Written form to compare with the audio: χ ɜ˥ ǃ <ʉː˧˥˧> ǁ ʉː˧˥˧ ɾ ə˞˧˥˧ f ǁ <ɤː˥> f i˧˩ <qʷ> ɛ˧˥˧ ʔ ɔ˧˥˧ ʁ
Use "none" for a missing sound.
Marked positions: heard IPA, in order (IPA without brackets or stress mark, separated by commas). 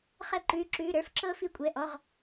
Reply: ʉː˧˥˧, ɤː˥, kʷʼ